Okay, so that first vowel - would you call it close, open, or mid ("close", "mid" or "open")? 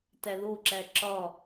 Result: open